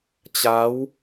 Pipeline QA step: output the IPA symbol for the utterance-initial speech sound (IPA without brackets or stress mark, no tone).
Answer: t͡ɕ